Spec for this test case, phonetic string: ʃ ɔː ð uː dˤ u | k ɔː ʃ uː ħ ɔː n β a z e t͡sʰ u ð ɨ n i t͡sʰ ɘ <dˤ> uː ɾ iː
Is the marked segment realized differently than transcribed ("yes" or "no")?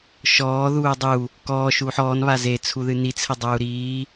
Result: no